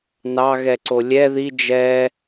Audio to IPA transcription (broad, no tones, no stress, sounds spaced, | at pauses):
n ɑ ɣ ɛ ǀ o lʲ ɛ ð i d͡ʒ ɛ